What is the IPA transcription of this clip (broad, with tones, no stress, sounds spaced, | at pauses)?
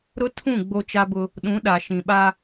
ɾ ʊ˦ tʰ ũ˦˨ ɡ͡b o˦ t͡ʃ a˦ b ʊ˦ | ɗ ũ˨˦ ɗ a˨ ʃ ĩ˨ ɓ a˦